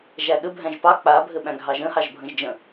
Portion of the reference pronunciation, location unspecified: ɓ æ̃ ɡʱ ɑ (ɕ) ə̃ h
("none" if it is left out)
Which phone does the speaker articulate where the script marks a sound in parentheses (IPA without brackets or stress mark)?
ʒ